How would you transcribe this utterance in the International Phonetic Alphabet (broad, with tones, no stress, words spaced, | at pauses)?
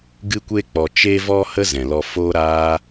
ɡɨ˦kʷe˦ k͡pɔ˧ t͡ʃe˦vɔ˦ hə˦ zɛ̃˨lɔ˧foː˦ ɾaː˦